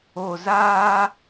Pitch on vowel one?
low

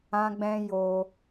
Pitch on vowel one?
high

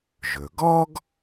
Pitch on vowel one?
low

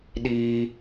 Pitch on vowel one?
high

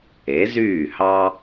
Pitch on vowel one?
rising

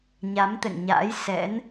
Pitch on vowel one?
rising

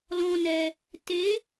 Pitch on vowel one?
low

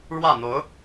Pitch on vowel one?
falling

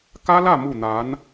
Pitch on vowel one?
high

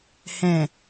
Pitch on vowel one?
low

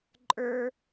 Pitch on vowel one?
high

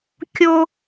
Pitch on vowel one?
high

